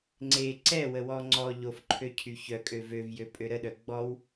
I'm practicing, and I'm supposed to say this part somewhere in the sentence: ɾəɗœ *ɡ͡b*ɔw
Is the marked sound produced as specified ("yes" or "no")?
yes